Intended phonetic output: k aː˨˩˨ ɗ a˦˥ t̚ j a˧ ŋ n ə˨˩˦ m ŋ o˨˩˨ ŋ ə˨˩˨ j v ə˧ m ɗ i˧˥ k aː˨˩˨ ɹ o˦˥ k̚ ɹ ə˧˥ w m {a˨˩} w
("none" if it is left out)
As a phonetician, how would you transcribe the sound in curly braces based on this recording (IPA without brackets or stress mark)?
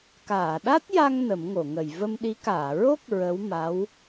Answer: a˧˥